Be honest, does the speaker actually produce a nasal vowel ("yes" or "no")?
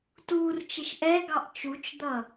no